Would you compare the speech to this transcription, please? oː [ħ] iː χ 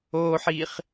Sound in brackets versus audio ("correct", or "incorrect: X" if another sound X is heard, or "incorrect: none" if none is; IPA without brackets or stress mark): correct